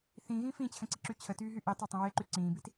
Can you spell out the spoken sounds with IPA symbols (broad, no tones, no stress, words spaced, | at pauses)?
θĩɣĩ fĩt͡ɕʰə̃ǀiǁy t͡ɕʰətyːɦy ʔitˤatˤə̃ weǃy ǀĩːbit